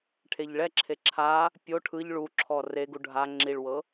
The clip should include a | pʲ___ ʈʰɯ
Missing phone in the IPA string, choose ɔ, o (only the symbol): o